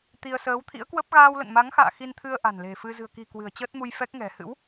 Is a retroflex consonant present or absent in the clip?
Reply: absent